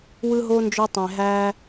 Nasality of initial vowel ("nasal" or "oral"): oral